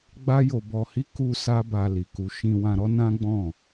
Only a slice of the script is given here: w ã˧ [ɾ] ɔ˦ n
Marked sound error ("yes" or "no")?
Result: no